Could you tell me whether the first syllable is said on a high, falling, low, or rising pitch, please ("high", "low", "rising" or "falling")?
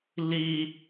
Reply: high